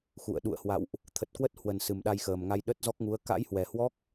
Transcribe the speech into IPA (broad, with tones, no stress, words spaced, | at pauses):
xṵ˧˨ə̯ ɗṵ˧˨ə̯hwa̰˧˨wʔ | t̪ʰə˨˩t̚kwə˦˥t̚hwə˨˩n sɨ˨˩mɗa˧jxəː˨˩mŋa˧j ɗə˦˥t̚zɔ˦˥k̚ŋu˨˦ə̯ ka̰˧˥jhwɛ˨˩hwɔ˦˥k̚